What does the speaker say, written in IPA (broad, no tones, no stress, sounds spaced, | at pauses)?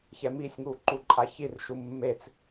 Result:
ç ɛ m i sʲ ŋ u ǃ u ǃʼ a ç i r ʃ u mː e t͡s